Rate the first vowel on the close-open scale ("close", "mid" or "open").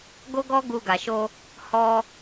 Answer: mid